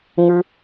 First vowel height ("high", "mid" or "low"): high